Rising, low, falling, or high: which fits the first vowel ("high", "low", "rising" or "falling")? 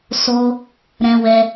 high